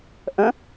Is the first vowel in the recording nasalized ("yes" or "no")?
yes